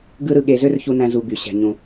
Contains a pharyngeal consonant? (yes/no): no